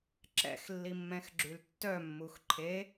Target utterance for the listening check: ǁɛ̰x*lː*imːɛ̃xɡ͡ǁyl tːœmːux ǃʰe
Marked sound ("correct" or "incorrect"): correct